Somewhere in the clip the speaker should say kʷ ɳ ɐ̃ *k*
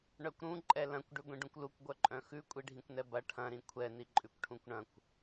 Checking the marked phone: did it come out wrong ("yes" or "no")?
yes